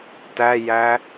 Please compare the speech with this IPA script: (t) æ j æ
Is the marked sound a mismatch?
no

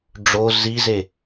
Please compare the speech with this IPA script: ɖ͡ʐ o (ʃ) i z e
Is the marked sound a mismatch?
yes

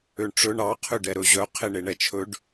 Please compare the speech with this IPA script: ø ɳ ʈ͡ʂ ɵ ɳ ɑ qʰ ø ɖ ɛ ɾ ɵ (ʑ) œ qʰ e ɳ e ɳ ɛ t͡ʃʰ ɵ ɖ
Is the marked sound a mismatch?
no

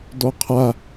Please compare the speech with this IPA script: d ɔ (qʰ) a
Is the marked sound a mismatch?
no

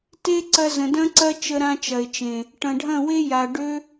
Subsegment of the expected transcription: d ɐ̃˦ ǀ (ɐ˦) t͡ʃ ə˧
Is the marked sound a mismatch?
no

